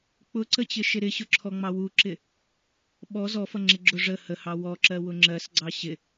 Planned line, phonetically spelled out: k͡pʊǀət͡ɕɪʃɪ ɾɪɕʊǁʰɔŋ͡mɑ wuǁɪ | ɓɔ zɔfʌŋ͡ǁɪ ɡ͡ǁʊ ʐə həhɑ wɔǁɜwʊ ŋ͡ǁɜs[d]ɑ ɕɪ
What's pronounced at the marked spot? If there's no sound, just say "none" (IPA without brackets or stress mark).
ɡ͡ǀ